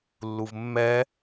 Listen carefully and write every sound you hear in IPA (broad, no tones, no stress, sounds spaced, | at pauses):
lː u v mː ɛ